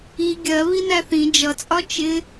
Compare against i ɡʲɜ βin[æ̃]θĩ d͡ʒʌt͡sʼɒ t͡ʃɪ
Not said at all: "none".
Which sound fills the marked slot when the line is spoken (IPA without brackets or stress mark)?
æ